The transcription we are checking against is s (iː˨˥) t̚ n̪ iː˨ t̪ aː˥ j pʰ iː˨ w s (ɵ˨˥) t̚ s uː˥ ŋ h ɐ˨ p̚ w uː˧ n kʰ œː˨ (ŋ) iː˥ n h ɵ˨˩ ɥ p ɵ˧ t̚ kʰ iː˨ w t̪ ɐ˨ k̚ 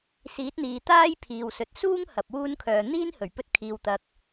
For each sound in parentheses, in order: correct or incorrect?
correct, correct, incorrect

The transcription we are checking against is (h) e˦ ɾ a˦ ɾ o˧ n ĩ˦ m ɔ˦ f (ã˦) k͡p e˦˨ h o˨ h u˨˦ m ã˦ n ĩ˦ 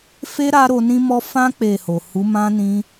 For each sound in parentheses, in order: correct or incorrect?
incorrect, correct

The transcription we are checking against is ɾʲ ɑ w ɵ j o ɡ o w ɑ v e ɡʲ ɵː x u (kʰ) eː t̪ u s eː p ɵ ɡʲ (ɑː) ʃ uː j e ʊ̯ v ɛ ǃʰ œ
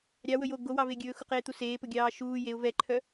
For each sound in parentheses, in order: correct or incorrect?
incorrect, correct

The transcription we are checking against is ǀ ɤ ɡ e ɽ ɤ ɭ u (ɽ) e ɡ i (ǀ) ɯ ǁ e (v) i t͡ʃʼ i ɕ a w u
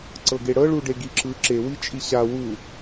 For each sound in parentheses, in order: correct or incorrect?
incorrect, incorrect, incorrect

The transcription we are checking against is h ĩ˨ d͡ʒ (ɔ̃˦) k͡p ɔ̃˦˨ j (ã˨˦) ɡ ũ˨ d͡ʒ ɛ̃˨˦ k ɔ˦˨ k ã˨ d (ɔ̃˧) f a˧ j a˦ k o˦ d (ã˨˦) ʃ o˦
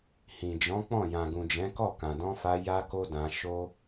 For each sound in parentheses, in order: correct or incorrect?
incorrect, incorrect, correct, incorrect

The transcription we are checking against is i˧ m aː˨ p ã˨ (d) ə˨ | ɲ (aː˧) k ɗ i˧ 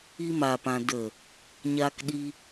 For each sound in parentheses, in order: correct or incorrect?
correct, correct

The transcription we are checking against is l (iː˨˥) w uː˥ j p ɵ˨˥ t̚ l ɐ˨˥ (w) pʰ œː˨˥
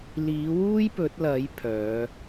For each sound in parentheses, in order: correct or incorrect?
correct, incorrect

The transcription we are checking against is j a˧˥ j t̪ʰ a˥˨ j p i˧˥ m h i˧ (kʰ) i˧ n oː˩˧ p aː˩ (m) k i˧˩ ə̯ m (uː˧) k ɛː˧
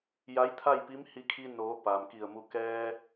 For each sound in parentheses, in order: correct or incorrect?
correct, correct, incorrect

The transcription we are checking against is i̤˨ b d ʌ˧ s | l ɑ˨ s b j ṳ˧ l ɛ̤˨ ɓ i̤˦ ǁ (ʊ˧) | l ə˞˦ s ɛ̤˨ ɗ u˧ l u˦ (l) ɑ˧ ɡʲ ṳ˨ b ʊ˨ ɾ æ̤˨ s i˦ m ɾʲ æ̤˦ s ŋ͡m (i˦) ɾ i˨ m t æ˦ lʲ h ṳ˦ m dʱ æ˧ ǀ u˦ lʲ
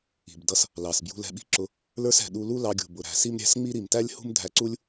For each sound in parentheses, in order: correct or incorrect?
correct, correct, correct

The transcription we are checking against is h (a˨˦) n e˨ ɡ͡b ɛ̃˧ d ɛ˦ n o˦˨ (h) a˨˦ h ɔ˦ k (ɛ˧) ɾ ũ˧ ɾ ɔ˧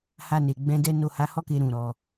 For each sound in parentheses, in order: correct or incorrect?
incorrect, correct, incorrect

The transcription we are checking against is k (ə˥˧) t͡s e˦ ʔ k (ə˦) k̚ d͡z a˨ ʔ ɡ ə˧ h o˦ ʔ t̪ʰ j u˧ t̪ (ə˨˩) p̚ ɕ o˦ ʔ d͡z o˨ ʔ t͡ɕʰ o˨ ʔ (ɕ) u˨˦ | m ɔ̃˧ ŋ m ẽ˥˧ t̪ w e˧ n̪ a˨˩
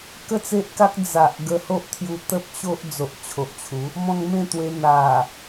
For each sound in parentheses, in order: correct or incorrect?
correct, incorrect, incorrect, incorrect

